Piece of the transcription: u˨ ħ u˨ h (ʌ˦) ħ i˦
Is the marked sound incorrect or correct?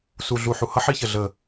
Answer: correct